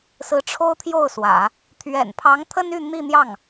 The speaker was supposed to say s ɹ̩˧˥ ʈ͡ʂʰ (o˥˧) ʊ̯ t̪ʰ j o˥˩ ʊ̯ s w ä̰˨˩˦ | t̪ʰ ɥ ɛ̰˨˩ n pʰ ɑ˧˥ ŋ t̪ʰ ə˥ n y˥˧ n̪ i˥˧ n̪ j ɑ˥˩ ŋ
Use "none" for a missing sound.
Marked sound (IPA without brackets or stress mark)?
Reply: o˥